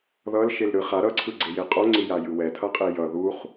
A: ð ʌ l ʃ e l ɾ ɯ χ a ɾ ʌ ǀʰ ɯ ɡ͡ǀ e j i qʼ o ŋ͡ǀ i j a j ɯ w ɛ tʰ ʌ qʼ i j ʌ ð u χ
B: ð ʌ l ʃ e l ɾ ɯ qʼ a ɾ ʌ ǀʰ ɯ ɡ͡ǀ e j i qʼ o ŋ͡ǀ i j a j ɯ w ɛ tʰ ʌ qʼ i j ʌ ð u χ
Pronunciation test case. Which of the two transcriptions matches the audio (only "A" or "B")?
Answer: A